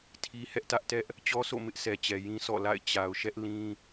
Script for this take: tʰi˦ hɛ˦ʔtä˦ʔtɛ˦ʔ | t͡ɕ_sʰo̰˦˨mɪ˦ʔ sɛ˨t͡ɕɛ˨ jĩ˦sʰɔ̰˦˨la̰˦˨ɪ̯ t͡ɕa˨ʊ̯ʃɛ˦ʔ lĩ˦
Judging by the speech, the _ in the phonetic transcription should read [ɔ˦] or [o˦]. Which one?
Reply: ɔ˦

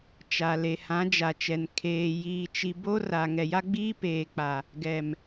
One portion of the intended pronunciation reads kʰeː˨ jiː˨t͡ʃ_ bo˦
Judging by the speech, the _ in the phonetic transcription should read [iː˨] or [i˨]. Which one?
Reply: i˨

